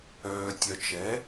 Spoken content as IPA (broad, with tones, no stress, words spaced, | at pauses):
œː˨tʲœ˨t͡ʃɛ˩˥